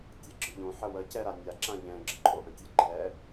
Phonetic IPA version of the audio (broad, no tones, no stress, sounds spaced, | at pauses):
tʲ ɛ ɡ͡ǁ ɯ ʎ õ ħ ə w ə c ɛ ɾ a nʲ a ǁ ã ʎ ɛ̃ ɡ͡ǁ ə ǃʼ o ʔ ə̃ tʲ ə ɡ͡ǃ ɛ